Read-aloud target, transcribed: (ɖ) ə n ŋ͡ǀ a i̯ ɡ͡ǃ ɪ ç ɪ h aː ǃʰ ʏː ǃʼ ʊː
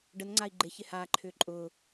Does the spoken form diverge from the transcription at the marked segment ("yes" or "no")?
no